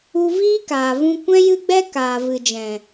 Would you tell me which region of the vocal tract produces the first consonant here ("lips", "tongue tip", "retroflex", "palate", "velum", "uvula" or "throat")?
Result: lips